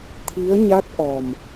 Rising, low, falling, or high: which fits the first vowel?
rising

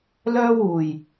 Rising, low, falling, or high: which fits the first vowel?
high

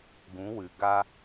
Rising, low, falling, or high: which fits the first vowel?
rising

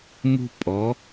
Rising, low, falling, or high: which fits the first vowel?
high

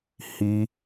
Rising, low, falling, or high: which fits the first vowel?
high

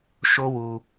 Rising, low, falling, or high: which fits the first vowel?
high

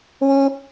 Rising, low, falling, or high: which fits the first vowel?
high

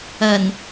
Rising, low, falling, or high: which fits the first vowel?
low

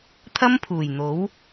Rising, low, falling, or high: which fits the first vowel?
high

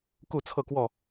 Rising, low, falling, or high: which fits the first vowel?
falling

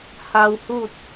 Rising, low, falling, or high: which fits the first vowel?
low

